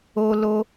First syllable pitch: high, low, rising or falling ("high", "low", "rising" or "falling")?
high